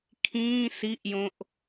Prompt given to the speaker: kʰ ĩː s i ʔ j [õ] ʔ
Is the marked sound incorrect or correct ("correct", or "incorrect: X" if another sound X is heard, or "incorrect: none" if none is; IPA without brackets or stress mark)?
correct